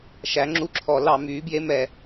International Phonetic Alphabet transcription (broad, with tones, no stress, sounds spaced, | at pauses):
ʃ æ˩˥ ŋ͡ǁ u˧˥ ǁʰ ɔ˧˩˧ l ɑ˧˩˧ m yː˩˥ b j e˧˥ m ɛ˧˩˧